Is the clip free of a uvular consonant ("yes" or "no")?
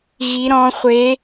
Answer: no